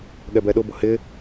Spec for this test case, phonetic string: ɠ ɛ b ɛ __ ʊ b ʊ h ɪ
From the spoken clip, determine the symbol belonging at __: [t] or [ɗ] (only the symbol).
ɗ